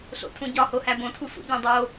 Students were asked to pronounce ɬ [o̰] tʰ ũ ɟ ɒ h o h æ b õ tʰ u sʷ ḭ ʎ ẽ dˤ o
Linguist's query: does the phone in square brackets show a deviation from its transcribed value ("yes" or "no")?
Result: no